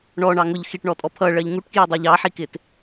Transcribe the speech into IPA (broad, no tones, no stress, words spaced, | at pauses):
ɳɔɳɑ ŋʊʎ xiʈɳɔtʼɔ pʰʌɭɜʎ ŋuʈkjɑdˤɑʎ ɑħikɪt